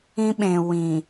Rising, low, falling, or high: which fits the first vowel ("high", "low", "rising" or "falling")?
high